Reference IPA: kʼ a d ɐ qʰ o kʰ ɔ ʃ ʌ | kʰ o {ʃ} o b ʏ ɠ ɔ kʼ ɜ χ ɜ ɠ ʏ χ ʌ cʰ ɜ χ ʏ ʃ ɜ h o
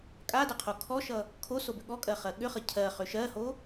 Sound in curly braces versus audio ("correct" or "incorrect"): incorrect